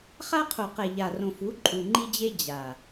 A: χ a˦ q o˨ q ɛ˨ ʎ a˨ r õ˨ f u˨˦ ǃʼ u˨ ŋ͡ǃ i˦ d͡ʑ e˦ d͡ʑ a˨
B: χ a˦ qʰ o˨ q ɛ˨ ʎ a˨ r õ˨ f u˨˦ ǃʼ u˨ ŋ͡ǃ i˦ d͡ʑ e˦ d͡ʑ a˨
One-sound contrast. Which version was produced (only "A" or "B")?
B